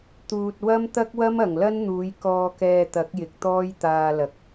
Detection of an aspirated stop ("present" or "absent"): absent